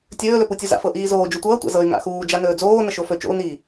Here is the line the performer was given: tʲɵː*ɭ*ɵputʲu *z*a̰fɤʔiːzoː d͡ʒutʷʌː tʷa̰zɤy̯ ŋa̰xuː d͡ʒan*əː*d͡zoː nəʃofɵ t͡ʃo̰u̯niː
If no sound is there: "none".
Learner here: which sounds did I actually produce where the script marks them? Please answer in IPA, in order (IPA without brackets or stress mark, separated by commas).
l, z, ɵː